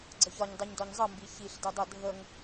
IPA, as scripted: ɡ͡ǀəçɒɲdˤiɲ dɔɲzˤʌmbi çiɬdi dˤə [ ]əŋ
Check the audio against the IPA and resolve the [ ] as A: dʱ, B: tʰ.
A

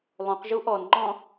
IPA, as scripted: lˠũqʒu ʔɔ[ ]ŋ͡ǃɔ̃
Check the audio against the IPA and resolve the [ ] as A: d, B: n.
B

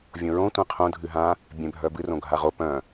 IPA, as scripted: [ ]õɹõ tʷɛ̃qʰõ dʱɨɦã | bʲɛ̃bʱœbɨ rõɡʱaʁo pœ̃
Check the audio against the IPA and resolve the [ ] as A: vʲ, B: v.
A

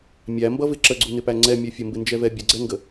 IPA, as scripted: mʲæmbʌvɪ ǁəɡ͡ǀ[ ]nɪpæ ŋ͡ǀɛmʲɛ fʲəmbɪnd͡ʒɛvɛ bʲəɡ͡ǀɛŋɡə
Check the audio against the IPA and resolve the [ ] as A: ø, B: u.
B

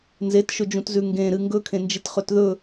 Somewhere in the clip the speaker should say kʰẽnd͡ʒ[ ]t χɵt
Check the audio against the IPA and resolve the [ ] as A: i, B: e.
A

